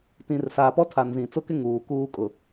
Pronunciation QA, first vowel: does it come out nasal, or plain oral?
nasal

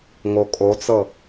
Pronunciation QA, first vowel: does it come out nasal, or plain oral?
oral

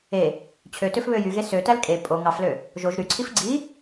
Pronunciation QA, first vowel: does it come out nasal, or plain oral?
oral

